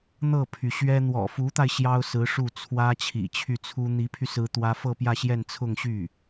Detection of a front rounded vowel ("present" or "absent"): present